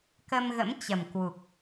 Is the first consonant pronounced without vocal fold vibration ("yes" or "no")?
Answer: yes